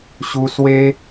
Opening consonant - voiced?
no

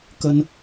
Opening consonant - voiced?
no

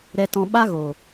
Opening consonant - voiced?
yes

